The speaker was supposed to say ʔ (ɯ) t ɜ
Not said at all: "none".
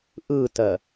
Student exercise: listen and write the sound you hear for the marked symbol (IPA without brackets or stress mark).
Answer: ɯ